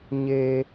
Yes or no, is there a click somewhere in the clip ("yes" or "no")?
no